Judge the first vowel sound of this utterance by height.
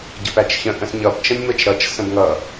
mid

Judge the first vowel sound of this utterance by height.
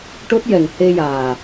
mid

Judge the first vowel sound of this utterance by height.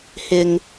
high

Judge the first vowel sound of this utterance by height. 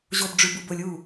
mid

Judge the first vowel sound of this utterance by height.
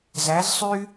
low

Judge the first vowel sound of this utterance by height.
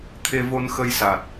mid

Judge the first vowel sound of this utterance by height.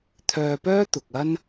mid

